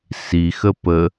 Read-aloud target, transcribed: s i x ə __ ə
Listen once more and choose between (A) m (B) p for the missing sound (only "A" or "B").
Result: B